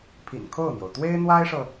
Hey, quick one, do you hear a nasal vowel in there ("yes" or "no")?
no